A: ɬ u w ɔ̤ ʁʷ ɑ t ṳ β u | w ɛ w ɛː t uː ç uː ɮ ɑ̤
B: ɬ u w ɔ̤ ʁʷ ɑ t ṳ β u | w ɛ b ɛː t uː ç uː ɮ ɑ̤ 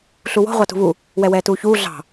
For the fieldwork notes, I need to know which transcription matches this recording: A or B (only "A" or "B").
A